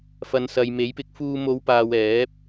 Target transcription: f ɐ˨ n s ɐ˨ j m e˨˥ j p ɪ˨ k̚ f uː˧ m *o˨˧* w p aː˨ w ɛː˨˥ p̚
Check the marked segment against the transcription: correct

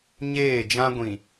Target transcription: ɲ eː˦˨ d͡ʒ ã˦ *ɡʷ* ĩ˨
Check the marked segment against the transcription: correct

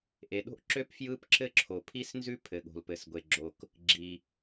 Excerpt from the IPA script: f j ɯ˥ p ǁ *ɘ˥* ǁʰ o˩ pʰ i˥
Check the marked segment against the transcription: correct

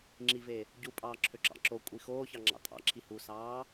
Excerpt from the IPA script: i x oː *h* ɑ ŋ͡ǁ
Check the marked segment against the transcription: incorrect: ç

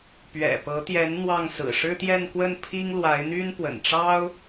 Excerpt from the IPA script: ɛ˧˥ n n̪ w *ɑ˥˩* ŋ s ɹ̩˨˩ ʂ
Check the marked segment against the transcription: correct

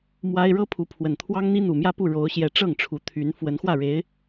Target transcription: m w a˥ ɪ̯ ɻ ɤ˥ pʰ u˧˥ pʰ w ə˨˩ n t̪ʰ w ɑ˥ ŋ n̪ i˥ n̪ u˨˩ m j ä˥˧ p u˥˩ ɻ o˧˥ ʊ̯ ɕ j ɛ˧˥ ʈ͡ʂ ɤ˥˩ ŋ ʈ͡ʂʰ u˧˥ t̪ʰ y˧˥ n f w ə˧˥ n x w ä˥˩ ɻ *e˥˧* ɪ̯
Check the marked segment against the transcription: incorrect: e˧˥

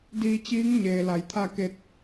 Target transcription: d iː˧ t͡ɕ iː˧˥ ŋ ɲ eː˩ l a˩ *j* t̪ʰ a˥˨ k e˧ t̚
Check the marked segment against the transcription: correct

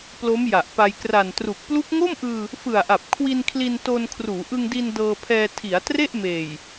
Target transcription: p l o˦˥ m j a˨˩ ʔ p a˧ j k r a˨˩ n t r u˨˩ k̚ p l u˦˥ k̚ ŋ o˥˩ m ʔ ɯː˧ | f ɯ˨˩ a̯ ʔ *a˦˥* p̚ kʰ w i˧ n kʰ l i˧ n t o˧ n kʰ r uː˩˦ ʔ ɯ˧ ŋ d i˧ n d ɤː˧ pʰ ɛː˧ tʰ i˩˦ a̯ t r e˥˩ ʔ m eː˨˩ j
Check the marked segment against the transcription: incorrect: a˨˩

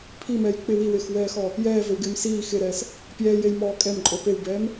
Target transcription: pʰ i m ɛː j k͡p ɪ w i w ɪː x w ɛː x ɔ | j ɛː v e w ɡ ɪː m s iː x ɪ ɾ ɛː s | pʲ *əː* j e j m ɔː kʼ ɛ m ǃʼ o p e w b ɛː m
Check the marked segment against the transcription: incorrect: ɛː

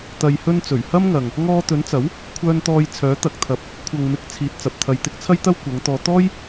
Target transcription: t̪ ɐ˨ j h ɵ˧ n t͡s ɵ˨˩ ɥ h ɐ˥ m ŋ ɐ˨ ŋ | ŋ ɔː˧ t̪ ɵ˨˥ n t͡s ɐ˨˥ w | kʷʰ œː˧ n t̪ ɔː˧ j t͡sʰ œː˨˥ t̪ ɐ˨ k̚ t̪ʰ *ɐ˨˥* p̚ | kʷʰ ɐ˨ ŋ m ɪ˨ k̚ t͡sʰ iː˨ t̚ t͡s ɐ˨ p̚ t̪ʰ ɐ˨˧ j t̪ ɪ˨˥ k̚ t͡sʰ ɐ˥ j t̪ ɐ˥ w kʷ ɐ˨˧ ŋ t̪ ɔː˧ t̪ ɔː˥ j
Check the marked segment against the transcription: correct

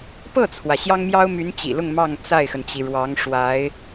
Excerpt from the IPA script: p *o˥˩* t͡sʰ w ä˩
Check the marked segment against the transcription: incorrect: ɤ˥˩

